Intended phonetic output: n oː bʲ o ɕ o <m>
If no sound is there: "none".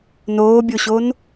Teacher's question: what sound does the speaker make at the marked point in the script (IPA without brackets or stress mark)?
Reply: n